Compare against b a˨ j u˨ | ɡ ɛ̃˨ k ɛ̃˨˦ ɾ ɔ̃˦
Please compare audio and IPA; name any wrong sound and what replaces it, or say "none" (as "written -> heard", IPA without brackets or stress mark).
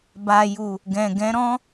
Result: k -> ɡ